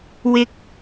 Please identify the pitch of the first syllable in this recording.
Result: high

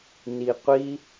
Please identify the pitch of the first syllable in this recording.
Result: low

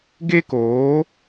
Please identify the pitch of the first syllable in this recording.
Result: high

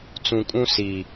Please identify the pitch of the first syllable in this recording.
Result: low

